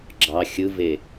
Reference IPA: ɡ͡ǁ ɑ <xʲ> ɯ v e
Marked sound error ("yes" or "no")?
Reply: no